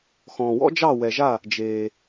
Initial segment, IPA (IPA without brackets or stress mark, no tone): x